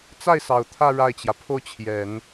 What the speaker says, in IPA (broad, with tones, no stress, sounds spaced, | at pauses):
t͡s a˥˩ ɪ̯ s ɑ˨˩ ʊ̯ t̪ʰ ä˥˧ ɻ a˥˩ ɪ̯ t͡ɕ j ä˩ pʰ o˥˩ ʊ̯ t͡ɕʰ j ɛ˨˩˦ n